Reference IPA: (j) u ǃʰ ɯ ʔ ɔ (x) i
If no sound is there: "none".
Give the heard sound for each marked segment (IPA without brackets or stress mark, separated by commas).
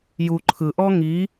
j, ŋ